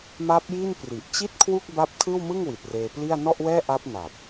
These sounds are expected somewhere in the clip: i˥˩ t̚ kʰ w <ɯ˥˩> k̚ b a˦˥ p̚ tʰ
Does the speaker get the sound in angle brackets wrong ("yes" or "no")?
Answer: yes